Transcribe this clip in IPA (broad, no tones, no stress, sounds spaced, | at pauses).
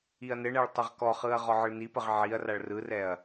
i ɐ̯ n ɘ ɳ ɛ ɭ tˤ ɘ ʁ k ɔ χ ɯ ɐ̯ ʁ ɔ ʕ ɯ ɭ n i p ə ʁ ʕ i ɐ̯ r a ɭ r ɯ r ɛ ɐ̯